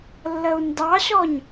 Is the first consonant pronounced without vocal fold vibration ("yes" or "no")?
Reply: no